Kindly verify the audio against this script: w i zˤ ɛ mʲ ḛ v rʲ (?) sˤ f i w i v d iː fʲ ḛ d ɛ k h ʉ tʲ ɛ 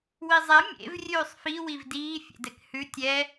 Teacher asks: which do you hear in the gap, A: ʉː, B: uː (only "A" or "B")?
A